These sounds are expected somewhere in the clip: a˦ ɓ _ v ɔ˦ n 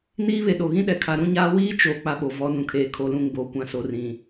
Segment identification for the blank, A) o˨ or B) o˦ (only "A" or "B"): A